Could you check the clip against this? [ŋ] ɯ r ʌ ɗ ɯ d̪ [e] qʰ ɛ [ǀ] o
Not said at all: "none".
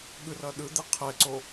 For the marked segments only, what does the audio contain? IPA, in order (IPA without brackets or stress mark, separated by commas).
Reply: ɠ, e, ǀ